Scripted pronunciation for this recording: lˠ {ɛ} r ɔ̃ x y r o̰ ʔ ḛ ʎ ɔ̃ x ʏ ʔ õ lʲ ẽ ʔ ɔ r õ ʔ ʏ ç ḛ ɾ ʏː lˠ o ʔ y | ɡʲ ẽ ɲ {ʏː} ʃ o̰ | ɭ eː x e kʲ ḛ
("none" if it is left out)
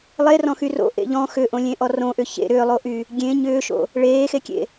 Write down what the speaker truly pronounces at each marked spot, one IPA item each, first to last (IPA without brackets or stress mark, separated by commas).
e, ʏː